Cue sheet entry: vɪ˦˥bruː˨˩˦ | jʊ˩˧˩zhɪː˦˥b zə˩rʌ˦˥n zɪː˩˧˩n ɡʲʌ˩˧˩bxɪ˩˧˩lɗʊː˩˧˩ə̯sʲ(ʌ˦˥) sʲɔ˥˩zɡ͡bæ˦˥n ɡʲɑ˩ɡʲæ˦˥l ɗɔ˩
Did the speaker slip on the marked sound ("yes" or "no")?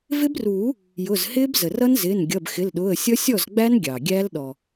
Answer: no